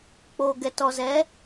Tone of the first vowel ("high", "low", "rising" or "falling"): low